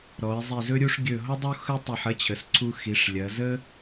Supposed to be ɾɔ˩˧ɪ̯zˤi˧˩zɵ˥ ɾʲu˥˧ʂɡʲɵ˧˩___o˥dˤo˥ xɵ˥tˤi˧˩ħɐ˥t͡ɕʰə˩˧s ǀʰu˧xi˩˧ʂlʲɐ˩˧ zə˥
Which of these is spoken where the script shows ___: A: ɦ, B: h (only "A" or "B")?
A